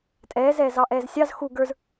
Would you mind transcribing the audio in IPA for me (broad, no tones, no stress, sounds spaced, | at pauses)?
tʼ ɛː z ɛː z ɑ ʔ ɛː z sʲ ɑ z x u ɡ ə˞ z